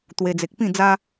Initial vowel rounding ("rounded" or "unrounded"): unrounded